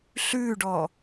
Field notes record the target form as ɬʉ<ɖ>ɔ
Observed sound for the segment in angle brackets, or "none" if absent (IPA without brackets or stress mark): ɖ